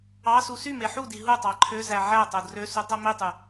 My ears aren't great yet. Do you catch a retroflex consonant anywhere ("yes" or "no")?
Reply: no